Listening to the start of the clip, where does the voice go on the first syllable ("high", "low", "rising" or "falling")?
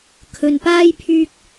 low